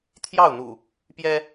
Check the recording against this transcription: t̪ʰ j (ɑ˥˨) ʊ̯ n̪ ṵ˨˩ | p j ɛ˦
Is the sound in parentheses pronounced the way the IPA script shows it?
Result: yes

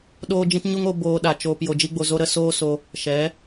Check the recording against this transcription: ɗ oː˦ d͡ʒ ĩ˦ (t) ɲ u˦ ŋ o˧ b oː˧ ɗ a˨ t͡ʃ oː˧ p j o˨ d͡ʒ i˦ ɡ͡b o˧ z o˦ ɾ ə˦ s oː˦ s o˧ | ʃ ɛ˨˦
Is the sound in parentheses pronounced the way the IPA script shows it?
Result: yes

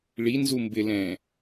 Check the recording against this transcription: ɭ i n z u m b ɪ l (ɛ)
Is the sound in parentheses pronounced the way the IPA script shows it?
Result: no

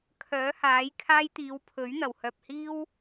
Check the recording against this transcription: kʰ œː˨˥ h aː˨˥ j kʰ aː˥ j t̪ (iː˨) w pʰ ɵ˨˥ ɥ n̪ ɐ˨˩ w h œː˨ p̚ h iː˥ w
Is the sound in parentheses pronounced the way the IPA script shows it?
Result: no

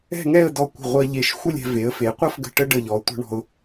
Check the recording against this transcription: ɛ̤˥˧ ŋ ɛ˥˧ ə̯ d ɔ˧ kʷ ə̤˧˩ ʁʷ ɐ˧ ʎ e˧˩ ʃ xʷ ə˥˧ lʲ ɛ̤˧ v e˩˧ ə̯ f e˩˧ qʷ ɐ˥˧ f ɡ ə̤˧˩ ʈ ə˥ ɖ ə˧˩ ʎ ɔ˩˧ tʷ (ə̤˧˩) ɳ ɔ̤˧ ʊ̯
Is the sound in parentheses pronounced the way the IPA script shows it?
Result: no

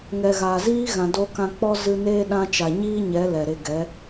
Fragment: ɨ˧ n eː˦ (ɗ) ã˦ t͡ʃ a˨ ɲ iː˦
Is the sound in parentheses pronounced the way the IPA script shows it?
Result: yes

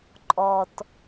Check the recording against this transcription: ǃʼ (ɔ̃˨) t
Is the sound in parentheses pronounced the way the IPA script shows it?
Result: no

